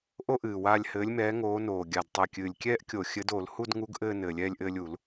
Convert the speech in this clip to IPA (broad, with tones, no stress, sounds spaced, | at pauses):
ʔ o˥ ʔ ɨː˨˩ w aː˦˨ lʲ h ɘː˨˦ lʲ m ɛː˨˦ ŋ oː˨˦ n oː˨˩ ɡʲ a˨˩ d tˤ ɨ˨˩ kʲ ɨː˨˩ lʲ kʲ ɛː˥ ʔ kʲ o˧˩˧ xʲ ɘ˨˦ d o˧˩˧ l h u˦˨ d ŋ u˨˦ ɡ ʔ ɘː˦˨ n ɘː˨˩ lʲ ɛː˦˨ lʲ ʔ ɘː˦˨ lʲ u˧˩˧ l